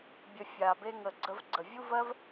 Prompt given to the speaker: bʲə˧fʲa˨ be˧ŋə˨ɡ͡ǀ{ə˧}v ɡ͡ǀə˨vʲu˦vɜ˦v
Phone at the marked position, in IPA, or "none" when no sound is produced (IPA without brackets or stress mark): ə˧